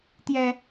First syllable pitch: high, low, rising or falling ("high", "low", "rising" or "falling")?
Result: high